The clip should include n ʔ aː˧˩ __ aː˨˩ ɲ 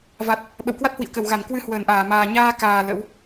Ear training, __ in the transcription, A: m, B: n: A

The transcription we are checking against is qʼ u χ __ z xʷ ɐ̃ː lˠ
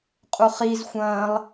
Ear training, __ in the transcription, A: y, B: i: B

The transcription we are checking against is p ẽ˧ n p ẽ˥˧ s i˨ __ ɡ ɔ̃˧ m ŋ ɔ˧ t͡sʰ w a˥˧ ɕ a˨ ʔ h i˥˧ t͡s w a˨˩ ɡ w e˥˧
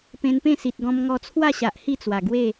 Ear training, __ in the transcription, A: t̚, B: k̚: A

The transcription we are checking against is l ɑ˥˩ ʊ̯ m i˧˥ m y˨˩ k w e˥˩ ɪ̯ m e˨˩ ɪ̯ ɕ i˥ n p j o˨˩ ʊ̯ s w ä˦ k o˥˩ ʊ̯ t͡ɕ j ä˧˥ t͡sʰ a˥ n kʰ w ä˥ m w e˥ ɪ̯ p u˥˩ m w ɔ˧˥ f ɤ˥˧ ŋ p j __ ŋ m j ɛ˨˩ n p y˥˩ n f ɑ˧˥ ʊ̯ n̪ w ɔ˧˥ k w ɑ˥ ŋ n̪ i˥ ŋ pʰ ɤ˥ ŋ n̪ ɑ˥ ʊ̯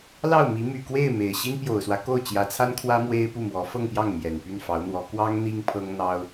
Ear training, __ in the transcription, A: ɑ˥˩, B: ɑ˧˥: A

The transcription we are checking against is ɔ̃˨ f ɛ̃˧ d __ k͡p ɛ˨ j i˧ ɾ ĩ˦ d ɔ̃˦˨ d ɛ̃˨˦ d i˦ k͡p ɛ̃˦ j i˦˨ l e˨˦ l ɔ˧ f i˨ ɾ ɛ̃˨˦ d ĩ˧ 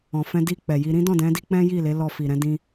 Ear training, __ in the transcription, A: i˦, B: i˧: B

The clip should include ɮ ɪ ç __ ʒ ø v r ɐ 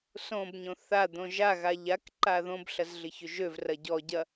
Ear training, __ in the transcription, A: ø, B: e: A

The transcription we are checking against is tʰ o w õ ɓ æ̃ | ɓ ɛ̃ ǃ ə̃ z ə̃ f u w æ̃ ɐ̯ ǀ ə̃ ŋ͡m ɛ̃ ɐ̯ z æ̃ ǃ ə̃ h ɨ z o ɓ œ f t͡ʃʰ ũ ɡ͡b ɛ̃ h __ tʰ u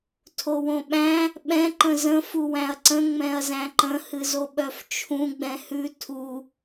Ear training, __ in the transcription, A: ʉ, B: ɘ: A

